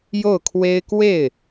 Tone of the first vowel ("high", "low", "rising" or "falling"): falling